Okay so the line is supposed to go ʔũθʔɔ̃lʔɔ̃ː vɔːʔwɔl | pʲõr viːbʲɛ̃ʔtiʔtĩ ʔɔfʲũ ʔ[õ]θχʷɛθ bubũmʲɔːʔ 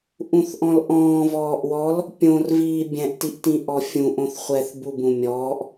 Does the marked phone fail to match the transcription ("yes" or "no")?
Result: no